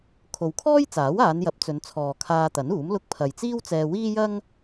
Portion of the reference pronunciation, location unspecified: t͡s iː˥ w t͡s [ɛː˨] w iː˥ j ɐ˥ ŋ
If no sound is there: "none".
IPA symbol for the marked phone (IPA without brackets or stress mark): ɛː˧